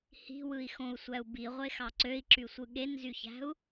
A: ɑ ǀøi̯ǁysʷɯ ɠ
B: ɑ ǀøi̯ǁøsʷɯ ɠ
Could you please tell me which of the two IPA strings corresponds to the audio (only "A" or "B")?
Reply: A